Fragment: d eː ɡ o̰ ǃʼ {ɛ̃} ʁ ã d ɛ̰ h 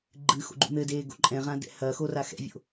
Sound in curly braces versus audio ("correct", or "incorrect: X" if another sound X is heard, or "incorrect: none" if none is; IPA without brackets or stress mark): correct